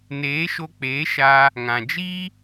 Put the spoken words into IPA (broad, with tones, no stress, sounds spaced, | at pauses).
n eː˨˦ ʃ o˧ k͡p eː˨˦ ʃ a˧ | ŋ ã˨ d͡ʒ i˦